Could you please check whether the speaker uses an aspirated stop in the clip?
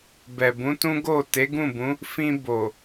no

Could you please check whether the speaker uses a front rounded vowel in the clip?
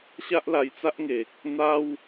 no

